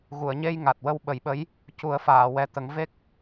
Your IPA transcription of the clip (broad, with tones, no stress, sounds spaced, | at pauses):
ɣ u˨˩˨ ə̯ ɲ e˧ j ŋ a˨˩ t̚ w ə˧ w ɓ ə˨˩˦ j ɓ ə˧˥ j | c u˨˩˦ ə̯ f aː˨˩˨ w ɛ˨˩ t̪ ə˨˩˦ ŋ v e˦˥ k̚